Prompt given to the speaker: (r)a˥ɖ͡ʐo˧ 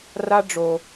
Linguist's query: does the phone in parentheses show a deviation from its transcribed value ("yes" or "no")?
no